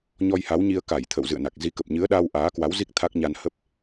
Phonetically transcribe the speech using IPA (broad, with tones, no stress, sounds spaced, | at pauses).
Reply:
ɲ ɔ˧ j h a˨˦ w ɲ i˧ ə̯ k a˧˩ j t̪ʰ ə̰˧˨ w z ɨ̰˧˨ ə̯ n a˨˩ k̚ z i˨˦ k ə˨˩ p̚ ɲ ɨ˨˦ ə̯ ɗ aː˧ w ʔ aː˨˦ k w a˨˦ w z i˦˥ k̚ t̪ʰ a˦˥ k̚ ɲ a˧ n h ə˦˥ p̚